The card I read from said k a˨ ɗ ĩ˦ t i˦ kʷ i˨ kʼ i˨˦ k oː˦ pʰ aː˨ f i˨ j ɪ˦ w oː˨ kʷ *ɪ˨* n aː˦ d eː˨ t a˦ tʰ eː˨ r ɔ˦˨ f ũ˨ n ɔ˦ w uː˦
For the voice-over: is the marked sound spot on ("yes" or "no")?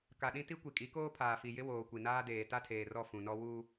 no